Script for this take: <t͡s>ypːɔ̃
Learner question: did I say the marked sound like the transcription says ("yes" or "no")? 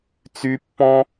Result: yes